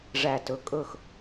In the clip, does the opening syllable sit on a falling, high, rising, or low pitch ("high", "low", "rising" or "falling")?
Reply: low